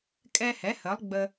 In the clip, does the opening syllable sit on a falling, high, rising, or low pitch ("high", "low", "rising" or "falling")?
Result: high